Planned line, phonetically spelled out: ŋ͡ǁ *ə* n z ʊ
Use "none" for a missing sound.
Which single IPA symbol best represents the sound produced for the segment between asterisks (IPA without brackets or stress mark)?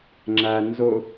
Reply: æ